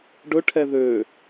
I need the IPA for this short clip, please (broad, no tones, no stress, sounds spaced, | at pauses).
ɖ ɵ ʈʰ ɛ ð ø